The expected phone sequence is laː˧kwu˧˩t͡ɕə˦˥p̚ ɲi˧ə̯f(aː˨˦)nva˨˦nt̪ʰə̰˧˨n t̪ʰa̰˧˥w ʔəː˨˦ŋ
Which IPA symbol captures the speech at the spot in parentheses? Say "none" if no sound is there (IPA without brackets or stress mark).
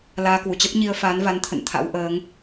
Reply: aː˨˦